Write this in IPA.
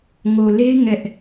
ŋ o˨ l e˦ ŋ ɛ˦ ʔ

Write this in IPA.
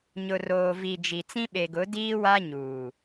ɲ ʊ˨ r oː˨ v i˨ d͡ʒ i˨ t͡s ĩ˦ ɓ e˨ ɡ ʊ˨˦ d iː˦ w a˦ ɲ uː˨

